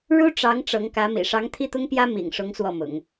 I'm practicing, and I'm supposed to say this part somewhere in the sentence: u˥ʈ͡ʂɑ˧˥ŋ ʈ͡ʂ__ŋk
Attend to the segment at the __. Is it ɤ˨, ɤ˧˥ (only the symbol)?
ɤ˧˥